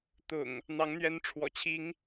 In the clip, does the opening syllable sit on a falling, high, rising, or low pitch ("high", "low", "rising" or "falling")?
low